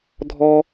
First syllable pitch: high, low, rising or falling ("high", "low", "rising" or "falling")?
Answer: high